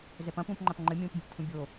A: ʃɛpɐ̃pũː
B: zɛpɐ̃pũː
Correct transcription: B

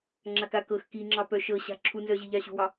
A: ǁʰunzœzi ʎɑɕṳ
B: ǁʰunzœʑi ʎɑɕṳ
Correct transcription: B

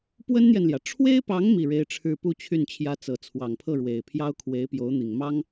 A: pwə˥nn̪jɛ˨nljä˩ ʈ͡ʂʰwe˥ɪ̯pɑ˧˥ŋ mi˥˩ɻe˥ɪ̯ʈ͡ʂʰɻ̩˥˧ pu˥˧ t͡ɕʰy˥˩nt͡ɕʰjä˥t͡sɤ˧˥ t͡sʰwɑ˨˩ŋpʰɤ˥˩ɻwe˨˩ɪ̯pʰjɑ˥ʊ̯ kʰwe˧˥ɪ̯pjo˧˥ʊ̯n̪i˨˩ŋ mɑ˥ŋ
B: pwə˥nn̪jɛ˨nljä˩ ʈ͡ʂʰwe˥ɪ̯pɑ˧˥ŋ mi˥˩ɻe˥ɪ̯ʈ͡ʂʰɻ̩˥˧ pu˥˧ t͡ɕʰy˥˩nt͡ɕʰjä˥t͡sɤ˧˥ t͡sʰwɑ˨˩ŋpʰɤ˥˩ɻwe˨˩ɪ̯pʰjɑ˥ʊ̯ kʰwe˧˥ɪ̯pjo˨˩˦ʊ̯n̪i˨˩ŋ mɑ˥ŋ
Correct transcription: A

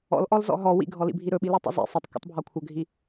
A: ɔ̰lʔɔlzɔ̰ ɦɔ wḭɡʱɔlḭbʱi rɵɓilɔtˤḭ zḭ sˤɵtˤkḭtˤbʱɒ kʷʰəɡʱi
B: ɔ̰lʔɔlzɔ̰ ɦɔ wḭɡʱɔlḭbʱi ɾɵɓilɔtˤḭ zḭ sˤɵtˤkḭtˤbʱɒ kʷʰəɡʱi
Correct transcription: B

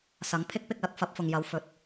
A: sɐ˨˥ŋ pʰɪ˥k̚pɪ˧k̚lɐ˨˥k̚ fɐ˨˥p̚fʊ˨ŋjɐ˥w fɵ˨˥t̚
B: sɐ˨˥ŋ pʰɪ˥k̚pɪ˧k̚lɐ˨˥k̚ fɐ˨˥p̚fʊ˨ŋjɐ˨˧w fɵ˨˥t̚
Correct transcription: B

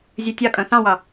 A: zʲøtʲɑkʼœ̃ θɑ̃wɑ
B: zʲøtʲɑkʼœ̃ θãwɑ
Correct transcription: A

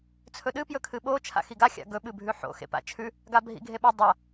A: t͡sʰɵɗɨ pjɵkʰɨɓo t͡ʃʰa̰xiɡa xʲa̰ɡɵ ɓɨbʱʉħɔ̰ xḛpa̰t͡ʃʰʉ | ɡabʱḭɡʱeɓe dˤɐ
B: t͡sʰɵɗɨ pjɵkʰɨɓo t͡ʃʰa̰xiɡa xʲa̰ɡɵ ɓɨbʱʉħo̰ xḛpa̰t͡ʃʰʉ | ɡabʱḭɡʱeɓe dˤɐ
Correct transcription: B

